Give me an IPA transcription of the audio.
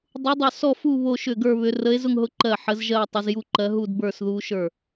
dˤ u˧˥ dˤ ʊ˥˩ s ɔ˥˧ f u˥˧ β o˥˧ ʃ ʏ˥˩ ɡ ə˞˥˧ β ʏ˧˥ r ə˧˥ e̯ z ʊ˥˧ ŋ ɦ ʊ˧˥ ǃ ɜ˥˩ ħ ə˧˥ z ʒ ɜ˥˧ o̯ tˤ ə˧˥ z j u˥˧ ǃ ɜ˧˥ ɦ u˥˧ d b ə˞˥˧ s ð u˧˥ ʃ ə˞˥˩

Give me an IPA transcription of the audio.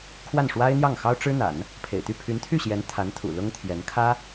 kʰ w a˥˩ n ʂ w a˥ ɪ̯ n̪ j ɑ˥˩ ŋ x ɑ˥ ʊ̯ ʈ͡ʂ ɻ̩˥ n̪ a̰˨˩˦ n | pʰ ḛ˨˩ ɪ̯ t̪ y˥˩ pʰ y˧˥ n t̪ʰ y˥˩ ɕ j ɛ˧˥ n t̪ʰ a˧˥ n t̪ʰ ṵ˨˩ l ʊ˥ ŋ t̪ʰ j ɛ˧˥ n kʰ ä˥

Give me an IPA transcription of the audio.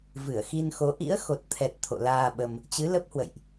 v ɨ˧˩ ə̯ x i˧ n x o˨˦ ʔ ḭ˧˥ ə̯ x o˨˩ t̚ t̪ʰ ɛ˨˩ t̚ t̪ʰ o̰˧˨ l aː˧ ɓ ə˧ m | t͡ɕ ɨ˨˦ l ə˦˥ p̚ h w ə̰˧˨ j ʔ

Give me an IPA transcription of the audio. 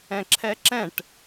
ɛ̃ ǁʰ ɛ ǁ ɛ̃ ʈ

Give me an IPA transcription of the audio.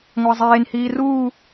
ŋʷ æ zˤ eː n h iː r uː

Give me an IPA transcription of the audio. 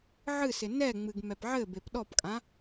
ʕ ɨ s ɪ n ɛ ŋ͡m ɨ ɡ m ɛ p ʕ ɘ b e p ɗ ɔ p kʼ ã

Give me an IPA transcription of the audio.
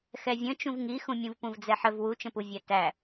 x ɛ vʲ ə̃ t͡ʃ ũ v ŋ i x ũ mʲ ũ v p ũ v d͡z ɛ ħ ə v w u t͡ʃ ə̃ p u vʲ æ t æ

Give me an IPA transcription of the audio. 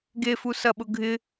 ɡ e f u s ɐ ɓ ʊ ɡʱ ɪ

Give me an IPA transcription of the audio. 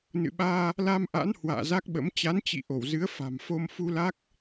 n ɨ̰˧˨ ɓ aː˧ | l a˧ m ʔ a̰˧˥ n h w a̰ː˧˨ z a˦˥ k̚ ɓ ə̰˧˥ m t͡ɕ a˨˦ n t͡ɕ ḭ˧˨ ʔ o˧˩ w z ɨ˨˦ ə̯ f a̤˨˩ m f o˧ m f u˧ l a˦˥ k̚

